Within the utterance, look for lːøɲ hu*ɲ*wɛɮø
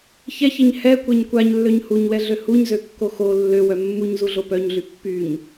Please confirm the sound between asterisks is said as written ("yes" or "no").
yes